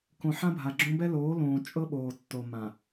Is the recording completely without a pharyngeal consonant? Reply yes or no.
no